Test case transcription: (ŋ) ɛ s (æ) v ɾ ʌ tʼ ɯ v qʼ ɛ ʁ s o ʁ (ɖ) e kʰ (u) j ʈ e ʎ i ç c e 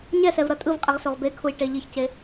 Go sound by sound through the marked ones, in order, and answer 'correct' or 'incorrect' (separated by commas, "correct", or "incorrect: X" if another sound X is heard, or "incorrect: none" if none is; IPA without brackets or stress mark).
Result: incorrect: ɲ, incorrect: ɛ, incorrect: b, correct